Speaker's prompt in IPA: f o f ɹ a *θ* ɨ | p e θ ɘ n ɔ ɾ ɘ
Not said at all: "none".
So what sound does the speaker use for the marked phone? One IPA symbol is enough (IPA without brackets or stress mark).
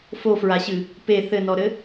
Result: ɕ